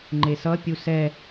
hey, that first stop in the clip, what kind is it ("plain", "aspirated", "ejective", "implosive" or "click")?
click